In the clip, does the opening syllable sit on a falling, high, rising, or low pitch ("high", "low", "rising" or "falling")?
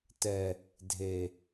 low